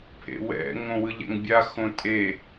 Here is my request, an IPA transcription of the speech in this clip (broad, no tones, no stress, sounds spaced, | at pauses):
pʰ ḛ w ɛ̰ ŋ õ w ɯ ʎ ɛ̰ ŋ bʲ a x õ tʼ e